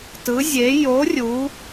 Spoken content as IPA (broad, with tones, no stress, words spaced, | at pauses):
tɯ˧˥zʲe˧˥ jo˧˥ rʲu˧˥